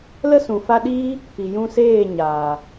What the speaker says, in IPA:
lə˦sũ˨fa˧ɗiː˦ | pi˨jũ˧seː˦˨ ɲaː˨

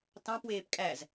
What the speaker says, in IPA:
tɑ̃pweːp kʼæz

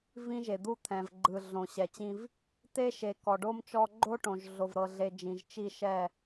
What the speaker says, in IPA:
vĩ˦ʒe˨ d̪u˦t̪ʰɛ̃˨vɡ͡ǃɯ˨ɮõ˨ ɕɛ˨t͡ɕĩ˦v | te˦ʃe˨ kɔ˨ɖo˦mt͡ʃɔ˦ ɡ͡ǃo˦ʈõ˨ʒ ɮo˨vɾɤ˨ɮe˨ d͡ʒĩ˨ʒ t͡ʃi˦˨ʃɛ˦˨

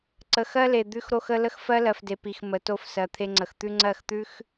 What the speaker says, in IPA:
ǀə˨xɜ˦le˨ d̪ʉ˦xɾo˦xə˦ lə˦xfɜ˦lɜ˨fde˨ pi˨x mə˨˦to˦f sɜ˨t̪ʰe˦ŋ͡ǀə˨x t̪ʉ˦ŋ͡ǀɜ˦˨xt̪ʉ˦x

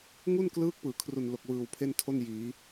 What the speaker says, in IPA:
ŋu˥˩nklɯː˦˥k̚ pɯː˩˦kʰru˨˩nlo˨˩k̚ wɯː˨˩wpʰe˥˩ntʰo˥˩n jiː˩˦

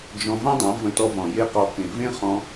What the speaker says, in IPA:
d͡ʒɔ̃˧ vã˦dˤã˨˦ və̃˧tɔ˧vɔ̃˨ je˧qɔ˨ kẽ˨vẽ˦ χɔ̃˧

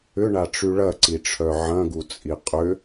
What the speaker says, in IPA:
ʏɳaʈ͡ʂy ɭɐǀiʈ͡ʂʰœ ʕɐ̃ɡut͡sʼi qʼʏ

